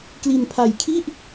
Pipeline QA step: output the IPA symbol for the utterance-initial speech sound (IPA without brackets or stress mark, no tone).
k